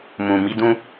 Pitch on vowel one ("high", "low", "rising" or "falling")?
low